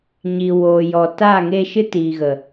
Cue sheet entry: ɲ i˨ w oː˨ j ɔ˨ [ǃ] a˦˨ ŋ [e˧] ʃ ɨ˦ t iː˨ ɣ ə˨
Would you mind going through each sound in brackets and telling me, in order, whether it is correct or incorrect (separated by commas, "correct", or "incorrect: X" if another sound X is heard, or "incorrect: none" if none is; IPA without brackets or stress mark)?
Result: incorrect: t, correct